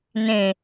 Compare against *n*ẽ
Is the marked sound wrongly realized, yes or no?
no